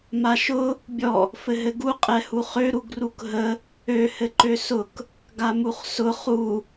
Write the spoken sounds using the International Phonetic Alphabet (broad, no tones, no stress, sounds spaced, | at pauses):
m a ʃ ʊ | bʲ ɔ | f ɘ ɦ ɘ ɡ u qʼ ɛ h u χ ø ɾ u ɡ r u k ɦ ə | ø h ɘ ǃ ø s ʊ k | ɡ a m u χ s ʊ χ u